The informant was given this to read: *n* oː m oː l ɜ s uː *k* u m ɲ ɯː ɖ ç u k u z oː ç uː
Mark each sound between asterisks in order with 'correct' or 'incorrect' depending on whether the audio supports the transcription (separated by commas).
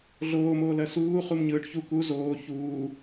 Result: incorrect, incorrect